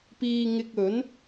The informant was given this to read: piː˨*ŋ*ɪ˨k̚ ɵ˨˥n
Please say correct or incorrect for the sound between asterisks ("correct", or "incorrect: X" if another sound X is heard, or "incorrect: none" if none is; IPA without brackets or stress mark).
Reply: correct